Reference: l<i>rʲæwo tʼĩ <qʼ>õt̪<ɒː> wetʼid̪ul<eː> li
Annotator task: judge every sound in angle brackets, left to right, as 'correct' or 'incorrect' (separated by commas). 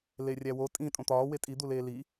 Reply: incorrect, incorrect, correct, correct